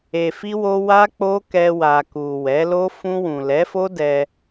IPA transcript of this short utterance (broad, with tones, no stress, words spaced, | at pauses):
e˨fi˧wo˧ wa˦k͡po˦ kɛ˧wa˨ku˨ wɛ˨˦lo˦ fũ˧wũ˨lɛ˨˦fo˦ dɛ˧